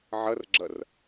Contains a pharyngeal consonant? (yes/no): yes